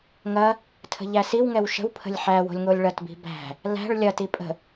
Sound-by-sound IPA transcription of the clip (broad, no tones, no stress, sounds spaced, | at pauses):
ŋ ɐ | tʰ ə̤ ʎ æ s i w ŋ ɛ w ʃ ə̤ w pʰ ə̤ lʲ ħ æ w o̤ lʲ ŋ o lʲ ɭ ɐ t b i̤ b æ̤ | l æ̤ ɭ lʲ ɐ t i pʼ ə̤